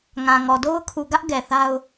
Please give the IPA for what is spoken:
ŋ ã˨ ŋ ɔ˨ d o˦ ʊ̯ kʰ u˨ ɡ ä˦ ʔ ɡ ɛ˨ θ a˦ ʊ̯

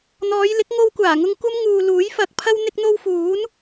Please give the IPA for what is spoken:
n̪ ɔː˨˧ j l ɪ˨˥ k̚ ŋ o˧ w kʷ aː˨˩ ŋ ʊ˧ ŋ kʷ ɐ˥ m ŋ uː˨ l uː˨˥ j f ɐ˨˥ k̚ pʰ ɐ˥ w n̪ ɪ˧ k̚ n̪ o˧ w f uː˨˥ n

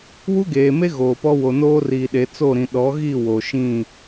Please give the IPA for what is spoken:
w u˦ ɡ eː˨ m e˦ ɣ oː˨ p ɔ˦ w o˨ n oː˦ r iː˨ ɗ e˨˦ t͡s o˦˨ ɾ ĩ˨ ɗ ɔ˨˦ ɣ i˦˨ w o˨ ʃ ĩ˦˨

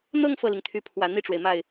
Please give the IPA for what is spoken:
n̪ ɤ˥˧ ŋ f ɤ˥˩ l i˩ ŋ t̪ʰ y˧˥ pʰ w ä˨˩ n̪ i˥˩ ʈ͡ʂ w e˩ ɪ̯ m a˥˩ ɪ̯

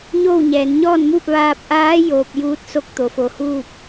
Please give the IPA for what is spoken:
ɲ oː˥˨ w ɲ ɛː˩˧ n ɲ ɔː˥˨ n m uː˥˨ p̚ ʋ aː˧ p̚ ʔ aː˧˥ j oː˧ p̚ j uː˧˥ t̚ s o˥˨ k̚ t̪ o˩ f o˩ h uː˥˨ p̚

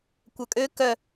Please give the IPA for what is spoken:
kʷ œ kʼ ø k œ

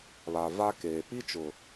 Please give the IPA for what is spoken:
β a˨ v a˦ k eː˨ p i˦ t͡ʃ ʊ˨

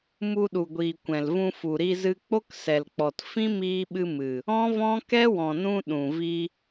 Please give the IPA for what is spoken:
m u˧ ɗ u˨ ɡʷ iː˨ kʷ ɛ̃˨ l v ũ˧ f u˨ ɾ i˧ z ɨ˧ k͡p o˦ k s ɛ˨ l k͡p ɔ˨ t f ĩ˦ m iː˧ ɓ ɨ˧ m ɨ˨ | ɔ̃˦ v ɔ̃˦ k ɛ˦ w ɔ̃˨ n ũ˧ ɗ ũ˨ v i˧

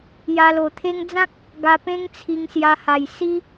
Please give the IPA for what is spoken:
j a˧ l o˨˩ t̪ʰ e˦ ŋ d͡z ã˦ k̚ | ɡ a˧ p ẽ˦ ŋ t͡sʰ i˧ ŋ s j a˧ h a˨˩ j s i˦

